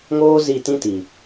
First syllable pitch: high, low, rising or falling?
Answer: high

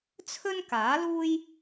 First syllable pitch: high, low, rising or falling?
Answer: high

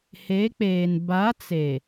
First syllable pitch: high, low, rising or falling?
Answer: rising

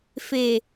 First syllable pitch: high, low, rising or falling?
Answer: low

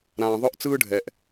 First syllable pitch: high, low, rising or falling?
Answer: low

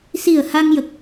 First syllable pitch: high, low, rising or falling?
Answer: low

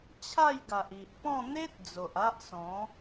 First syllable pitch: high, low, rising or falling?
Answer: falling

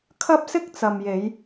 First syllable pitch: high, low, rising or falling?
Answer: high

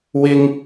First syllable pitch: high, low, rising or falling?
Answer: high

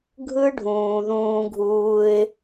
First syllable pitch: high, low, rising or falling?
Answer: high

